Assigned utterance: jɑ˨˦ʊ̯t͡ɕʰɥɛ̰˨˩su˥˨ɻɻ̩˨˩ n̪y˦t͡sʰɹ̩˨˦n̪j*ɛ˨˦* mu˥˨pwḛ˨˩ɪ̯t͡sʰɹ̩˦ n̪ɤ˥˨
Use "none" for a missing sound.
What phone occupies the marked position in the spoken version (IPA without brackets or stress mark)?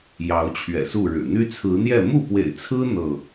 ɛ˥˨